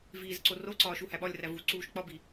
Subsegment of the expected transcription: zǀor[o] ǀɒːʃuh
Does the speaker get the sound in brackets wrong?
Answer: no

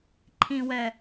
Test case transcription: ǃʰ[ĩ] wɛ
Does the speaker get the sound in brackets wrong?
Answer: no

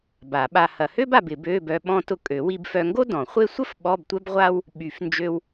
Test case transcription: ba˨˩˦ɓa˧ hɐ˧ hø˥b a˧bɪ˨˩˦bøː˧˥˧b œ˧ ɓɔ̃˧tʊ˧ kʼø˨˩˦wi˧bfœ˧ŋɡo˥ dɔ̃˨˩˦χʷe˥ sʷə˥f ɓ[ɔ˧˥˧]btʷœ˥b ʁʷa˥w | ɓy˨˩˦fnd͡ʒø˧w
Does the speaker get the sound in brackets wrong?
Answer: no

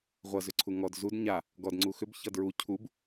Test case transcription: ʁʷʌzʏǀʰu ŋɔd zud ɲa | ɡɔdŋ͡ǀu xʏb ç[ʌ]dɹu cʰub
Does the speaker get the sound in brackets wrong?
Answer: no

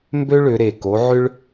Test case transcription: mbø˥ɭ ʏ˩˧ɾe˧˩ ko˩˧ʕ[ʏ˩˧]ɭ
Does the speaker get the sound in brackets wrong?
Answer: yes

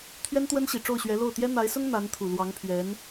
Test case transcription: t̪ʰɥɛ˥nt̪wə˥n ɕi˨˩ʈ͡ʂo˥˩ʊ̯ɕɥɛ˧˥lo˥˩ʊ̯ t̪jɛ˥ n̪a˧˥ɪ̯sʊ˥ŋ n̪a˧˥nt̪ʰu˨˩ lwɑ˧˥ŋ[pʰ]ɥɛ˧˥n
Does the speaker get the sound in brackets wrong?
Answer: no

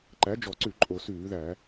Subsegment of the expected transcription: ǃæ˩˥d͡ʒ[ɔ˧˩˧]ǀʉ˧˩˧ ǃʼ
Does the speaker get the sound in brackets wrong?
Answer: no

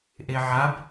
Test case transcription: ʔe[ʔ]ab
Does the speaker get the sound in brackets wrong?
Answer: yes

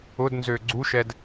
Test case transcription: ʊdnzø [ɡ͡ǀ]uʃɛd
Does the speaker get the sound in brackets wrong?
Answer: no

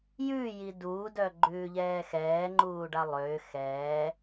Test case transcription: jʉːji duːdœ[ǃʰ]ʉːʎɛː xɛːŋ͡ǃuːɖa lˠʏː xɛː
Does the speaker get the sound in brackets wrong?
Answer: yes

